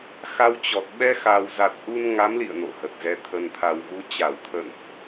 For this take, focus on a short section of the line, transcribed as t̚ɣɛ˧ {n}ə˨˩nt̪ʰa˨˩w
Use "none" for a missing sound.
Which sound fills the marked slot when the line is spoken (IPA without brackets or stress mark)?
t̪ʰ